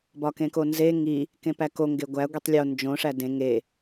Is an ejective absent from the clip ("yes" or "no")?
yes